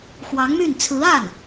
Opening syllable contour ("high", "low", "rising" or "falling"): rising